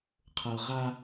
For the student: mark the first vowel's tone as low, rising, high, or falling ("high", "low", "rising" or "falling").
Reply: low